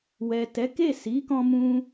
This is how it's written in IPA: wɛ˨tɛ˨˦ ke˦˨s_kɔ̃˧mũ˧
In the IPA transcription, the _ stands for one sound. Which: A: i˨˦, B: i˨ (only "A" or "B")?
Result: A